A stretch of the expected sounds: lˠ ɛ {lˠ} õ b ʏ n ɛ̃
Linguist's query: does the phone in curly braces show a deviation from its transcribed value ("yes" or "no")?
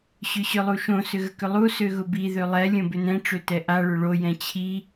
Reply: yes